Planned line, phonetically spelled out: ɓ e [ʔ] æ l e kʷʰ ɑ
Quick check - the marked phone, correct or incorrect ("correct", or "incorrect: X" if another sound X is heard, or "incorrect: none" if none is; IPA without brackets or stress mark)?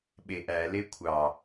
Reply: correct